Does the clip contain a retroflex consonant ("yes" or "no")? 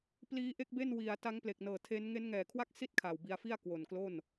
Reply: no